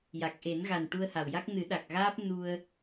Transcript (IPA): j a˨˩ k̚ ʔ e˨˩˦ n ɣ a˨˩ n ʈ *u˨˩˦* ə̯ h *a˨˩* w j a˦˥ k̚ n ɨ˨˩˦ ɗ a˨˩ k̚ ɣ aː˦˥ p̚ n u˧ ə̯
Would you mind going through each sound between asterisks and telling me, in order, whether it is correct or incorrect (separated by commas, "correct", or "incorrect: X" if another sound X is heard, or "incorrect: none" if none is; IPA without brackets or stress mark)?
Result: incorrect: u˧, correct